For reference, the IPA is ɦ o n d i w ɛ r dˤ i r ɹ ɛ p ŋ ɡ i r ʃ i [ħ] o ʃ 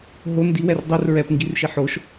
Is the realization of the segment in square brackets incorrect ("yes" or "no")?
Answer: no